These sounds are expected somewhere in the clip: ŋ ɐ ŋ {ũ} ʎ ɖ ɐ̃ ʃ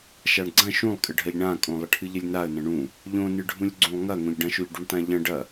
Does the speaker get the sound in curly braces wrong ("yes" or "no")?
yes